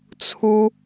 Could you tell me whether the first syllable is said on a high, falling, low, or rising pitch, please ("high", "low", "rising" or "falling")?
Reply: high